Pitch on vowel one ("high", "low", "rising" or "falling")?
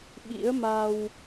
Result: rising